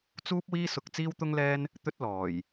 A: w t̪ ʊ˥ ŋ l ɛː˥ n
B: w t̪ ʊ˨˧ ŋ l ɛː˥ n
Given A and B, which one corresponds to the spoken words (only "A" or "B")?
A